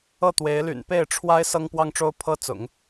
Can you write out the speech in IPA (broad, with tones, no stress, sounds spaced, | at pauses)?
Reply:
ɤ˥˩ t̪ w e˧˥ ɪ̯ l y̰˨˩ n p e˥˩ ɪ̯ ʈ͡ʂʰ w a˥ ɪ̯ s ɤ˥ ŋ p w ɑ˥ ŋ ʈ͡ʂ o˥ ʊ̯ pʰ ɤ˥ t͡s ʊ̰˨˩˦ ŋ